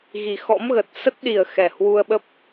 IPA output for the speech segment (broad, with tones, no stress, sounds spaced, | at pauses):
ɣ i˨˩ x ɔ̰˧˥ m ɣ ə˨˩ t̚ s ə˦˥ t̚ ɗ i˨˩ ə̯ x ɛ˨˩ h w u˧ ə̯ ɓ ə˦˥ p̚